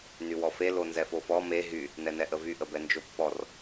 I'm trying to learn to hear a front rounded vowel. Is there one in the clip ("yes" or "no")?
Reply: yes